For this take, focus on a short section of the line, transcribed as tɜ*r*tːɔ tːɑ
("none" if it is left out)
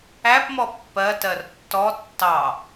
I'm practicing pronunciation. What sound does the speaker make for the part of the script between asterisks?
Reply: r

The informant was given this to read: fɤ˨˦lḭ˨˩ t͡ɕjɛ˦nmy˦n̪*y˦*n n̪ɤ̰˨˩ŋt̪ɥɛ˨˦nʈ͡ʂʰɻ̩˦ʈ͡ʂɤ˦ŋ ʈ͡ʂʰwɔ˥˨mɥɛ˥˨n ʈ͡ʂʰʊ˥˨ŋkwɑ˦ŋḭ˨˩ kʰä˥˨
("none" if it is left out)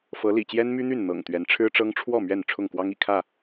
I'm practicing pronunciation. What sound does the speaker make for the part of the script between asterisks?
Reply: y˥˨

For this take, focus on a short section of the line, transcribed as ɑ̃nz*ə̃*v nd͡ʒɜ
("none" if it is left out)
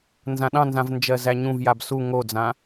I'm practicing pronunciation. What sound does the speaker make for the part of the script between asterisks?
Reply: ã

